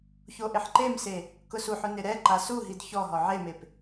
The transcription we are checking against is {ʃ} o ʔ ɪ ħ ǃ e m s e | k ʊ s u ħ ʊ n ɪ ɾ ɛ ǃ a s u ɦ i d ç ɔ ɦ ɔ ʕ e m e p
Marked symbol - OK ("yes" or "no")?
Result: no